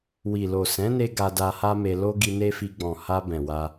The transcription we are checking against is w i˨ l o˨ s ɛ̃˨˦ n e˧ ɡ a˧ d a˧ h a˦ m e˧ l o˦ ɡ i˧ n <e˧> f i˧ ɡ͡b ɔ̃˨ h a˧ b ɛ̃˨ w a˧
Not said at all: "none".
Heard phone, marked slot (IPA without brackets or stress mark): e˦